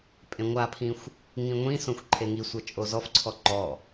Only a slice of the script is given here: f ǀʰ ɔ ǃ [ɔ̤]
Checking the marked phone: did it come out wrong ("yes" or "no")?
yes